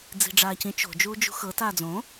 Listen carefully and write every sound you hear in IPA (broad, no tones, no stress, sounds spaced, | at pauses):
d͡z i̤ ɖ͡ʐ aː c ĩ t͡ʃ o̤ d͡ʒ uː d͡ʒ ṳ x ɤ t aː d͡z õ